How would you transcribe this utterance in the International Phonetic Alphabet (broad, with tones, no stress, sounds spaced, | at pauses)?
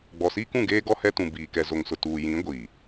ɡ͡b ɔ˨ s iː˦ k ũ˦˨ ɡ eː˦ ɡ ɔ˦ h ɛ˦ t ũ˨ b iː˨ k ɛ˨ z o˨ ŋ s ʊ˨ t uː˨ j ĩ˨˦ ɡʷ iː˨